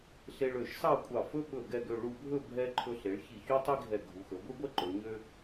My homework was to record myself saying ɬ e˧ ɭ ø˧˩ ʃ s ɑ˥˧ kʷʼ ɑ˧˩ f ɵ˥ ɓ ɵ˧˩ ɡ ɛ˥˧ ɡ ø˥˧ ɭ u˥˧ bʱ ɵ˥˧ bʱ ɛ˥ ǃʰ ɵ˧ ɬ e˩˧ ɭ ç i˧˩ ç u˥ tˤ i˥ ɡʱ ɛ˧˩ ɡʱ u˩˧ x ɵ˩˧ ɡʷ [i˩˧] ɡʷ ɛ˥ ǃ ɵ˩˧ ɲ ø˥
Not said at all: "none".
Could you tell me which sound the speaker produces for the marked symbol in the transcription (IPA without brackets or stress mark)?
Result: i˥